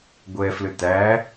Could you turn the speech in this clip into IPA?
ɡʷ ɛ f l ʏ t æ

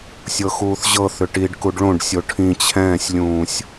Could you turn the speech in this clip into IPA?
sʲ ɤ x uː θ ʑ ɤ θ ʏ ʈ i ɖ k u ɖ ɭ õ ɖ sʲ o ʈʰ ĩ t͡ɕʰ ɛ̃ː sʲ lʲ ũː sʲ

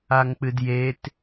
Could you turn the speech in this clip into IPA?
a ŋ k͡p ɨ d j e t

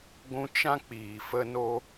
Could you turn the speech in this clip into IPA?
ɡʷ ũ˧ t͡ʃ ã˦ k͡p iː˨ f ə˦ n o˦

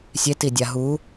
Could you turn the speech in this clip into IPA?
sʲ e t i dʲ a ɦ u

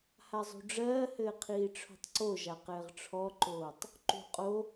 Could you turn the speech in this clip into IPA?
h a zˤ ṳ ɖ͡ʐ ɜː h ɘː qʰ iː ʈ͡ʂʰ o̤ tˤ ǀ o ʒ a q ɘː ʁ ʈ͡ʂʰ ɔ ǃ oː tˤ | ǃ ṳ qʼ o

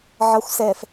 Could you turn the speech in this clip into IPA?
ʕ ʌ˨ xʷ s ɛː˨ f

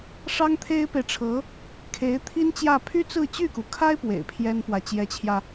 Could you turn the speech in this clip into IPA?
ʂ ɑ˥ ŋ t̪ʰ e˥ ɪ̯ p e˨ ɪ̯ ʈ͡ʂʰ ɤ˧˥ | kʰ e˧˥ ɪ̯ t̪ʰ i˥ n t͡ɕ j ä˥˩ pʰ y˥ t͡s ɹ̩˥˧ t͡ɕ y˥˩ k u˩ kʰ a˥ ɪ̯ p w ḛ˨˩ ɪ̯ pʰ j ɛ˥ n f w ä˨ t͡ɕ j ɛ˧˥ t͡ɕʰ j ä˧

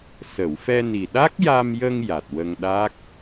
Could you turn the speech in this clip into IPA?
s ə˨˩˨ w f ɛ˧ n i˨˩ ɗ a˦˥ k̚ j a˧ m j ə˧ ŋ j a˨˩ t̚ w ə˧ ŋ ɗ a˦˥ k̚

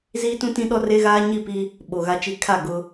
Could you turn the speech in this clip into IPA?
z iː˦ t ũ˦ t ĩ˦ ɗ ɔ˦ r e˦ ɣ aː˦ ɲ i˦˨ p i˦ | ɓ o˨ ɣ a˦ t͡ʃ i˦ kʰ a˦˨ ɡ ʊ˦

